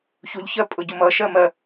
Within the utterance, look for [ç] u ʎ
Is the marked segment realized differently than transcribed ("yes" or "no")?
no